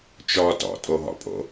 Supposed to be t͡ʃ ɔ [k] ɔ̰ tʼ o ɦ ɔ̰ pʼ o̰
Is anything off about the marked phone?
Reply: yes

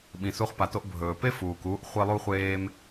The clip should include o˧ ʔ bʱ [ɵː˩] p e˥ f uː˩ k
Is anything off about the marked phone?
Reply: no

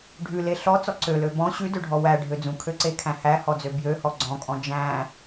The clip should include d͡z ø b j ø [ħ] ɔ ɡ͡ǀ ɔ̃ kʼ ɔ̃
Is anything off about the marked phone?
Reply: yes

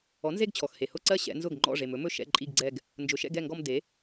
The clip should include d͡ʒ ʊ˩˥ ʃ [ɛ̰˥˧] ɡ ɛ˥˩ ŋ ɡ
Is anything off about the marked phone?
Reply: no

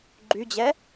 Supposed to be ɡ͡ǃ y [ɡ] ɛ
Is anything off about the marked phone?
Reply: yes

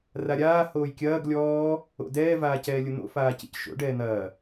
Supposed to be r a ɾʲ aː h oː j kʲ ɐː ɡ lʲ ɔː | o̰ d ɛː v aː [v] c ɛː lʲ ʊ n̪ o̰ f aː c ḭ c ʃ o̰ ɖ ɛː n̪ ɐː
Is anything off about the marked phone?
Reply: yes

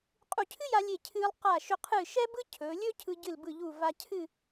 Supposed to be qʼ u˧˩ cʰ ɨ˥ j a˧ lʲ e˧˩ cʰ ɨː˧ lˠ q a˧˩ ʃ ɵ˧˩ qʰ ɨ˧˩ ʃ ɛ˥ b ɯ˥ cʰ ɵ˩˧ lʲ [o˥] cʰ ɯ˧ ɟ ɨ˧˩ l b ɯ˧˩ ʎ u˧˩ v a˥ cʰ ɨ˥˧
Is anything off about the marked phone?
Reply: yes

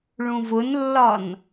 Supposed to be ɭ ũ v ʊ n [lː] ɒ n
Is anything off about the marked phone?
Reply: no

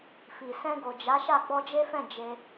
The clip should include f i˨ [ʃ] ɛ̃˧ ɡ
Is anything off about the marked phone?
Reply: yes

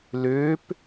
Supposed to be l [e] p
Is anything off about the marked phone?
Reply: yes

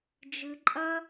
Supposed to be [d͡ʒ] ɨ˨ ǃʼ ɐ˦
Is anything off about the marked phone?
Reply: no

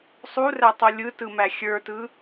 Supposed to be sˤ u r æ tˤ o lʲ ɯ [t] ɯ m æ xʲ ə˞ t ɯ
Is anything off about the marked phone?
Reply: no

